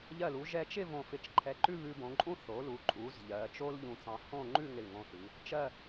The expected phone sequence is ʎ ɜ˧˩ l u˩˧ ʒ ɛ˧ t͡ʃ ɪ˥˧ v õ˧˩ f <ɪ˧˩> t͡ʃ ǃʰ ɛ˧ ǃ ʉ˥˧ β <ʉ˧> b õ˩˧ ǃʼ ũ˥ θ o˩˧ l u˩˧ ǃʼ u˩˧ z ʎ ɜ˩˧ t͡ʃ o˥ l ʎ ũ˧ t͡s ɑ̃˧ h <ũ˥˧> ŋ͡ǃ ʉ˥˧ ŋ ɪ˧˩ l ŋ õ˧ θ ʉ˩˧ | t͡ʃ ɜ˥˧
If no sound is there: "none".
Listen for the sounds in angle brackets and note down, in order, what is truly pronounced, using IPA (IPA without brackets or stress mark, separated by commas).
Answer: ɪ˧˩, ʉ˧, õ˥˧